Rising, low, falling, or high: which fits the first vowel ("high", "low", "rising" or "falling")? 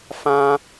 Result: high